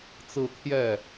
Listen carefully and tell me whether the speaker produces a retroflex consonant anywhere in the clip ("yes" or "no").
no